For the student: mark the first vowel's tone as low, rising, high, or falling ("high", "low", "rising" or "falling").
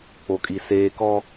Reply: low